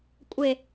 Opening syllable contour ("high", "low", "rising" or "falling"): low